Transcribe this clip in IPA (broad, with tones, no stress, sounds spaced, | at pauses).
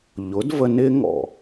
ʎ ʊ˨˦ d v ə˧ n ɪ˦ ŋ ɔ̰˦˨